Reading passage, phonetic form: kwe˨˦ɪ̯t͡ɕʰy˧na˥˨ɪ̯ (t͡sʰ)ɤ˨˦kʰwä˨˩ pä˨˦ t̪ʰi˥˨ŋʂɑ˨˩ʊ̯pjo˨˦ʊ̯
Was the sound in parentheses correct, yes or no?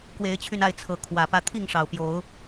yes